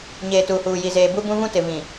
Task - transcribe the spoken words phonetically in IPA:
ɲ eː˨ t uː˨ h uː˨ j i˨ z eː˨ b u˦ b ũ˦ v ũ˦ t ɪ˨ v ĩ˨

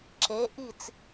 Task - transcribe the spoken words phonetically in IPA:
ǁ e˩˧ ʔ i˧˩ t͡s

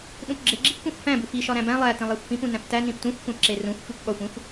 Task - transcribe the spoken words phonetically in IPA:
ɗ ũ p ɡ͡ǁ e ɡ͡ǁ i p kʷ ẽ xʷ f æ̃ b u f i ʃ ɒ ɾ æ̃ b æ̃ lˠ æ t ĩ lˠ æ xʷ f ĩ p ũ n æ̃ p t æ n ĩ p t ũ xʷ kʷ æ̃ p ǁ e r ũ xʷ f i kʷ ɠ ɒ xʷ ĩ xʷ

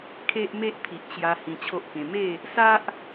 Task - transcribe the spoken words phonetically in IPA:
kʰ e˦ ʔ m e˦ ʔ t̪ʰ i˨ ʔ t͡ɕ j a˧ h ĩ˧ t͡ɕʰ o˦ ʔ k ẽ˧ m e˥˧ | s a˦ ʔ

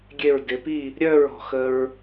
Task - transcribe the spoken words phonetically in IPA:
ɡʲ e˧˩ ɹ d ɪ˩˧ p i˥˨ | ɾʲ œ˥˨ ɹ ɔ̤˧˩ x ə˧ ɹ

